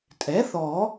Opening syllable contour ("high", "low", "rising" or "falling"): rising